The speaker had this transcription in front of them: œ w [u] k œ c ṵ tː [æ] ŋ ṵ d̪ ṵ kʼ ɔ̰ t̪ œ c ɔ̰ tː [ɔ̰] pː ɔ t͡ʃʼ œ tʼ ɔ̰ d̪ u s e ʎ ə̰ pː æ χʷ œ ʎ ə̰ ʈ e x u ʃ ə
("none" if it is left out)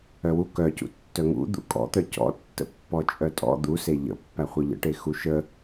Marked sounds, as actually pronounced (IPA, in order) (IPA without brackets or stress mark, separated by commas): u, œ, ə̰